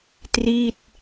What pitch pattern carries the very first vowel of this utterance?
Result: falling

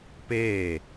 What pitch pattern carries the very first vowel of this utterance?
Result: falling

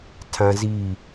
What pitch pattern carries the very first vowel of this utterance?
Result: high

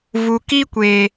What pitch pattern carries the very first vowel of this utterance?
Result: low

